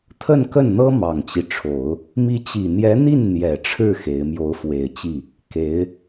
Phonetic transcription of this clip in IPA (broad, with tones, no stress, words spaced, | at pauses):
t̪ʰə˥˧nkə˥˩nn̪ɤ˥ mɑ˨˩ŋt͡ɕi˦ʈ͡ʂʰo˨˩˦ʊ̯ | mi˧˥t͡ɕi˨˩n̪jɛ˧˥n̪i˥˩n n̪jɛ˨˩ʈ͡ʂʰɻ̩˥˩ xe˧˥ɪ̯ mjo˧˥ʊ̯fwe˨˩ɪ̯t͡ɕi˥˩ | ke˧˥ɪ̯